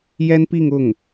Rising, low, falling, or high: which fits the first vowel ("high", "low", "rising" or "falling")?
high